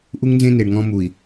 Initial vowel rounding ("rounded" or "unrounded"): rounded